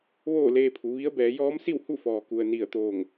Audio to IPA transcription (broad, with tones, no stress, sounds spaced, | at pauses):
ʋ oː˥˨ l eː˧ pʰ u˩˧ ʋ i˧˥ ə̯ b ɛː˩˧ j ɔː˧˥ m s i˥˨ w h u˥˨ f ɔː˩ k u˩ ə̯ n i˧˩ ə̯ t̪ oː˧˩ ŋ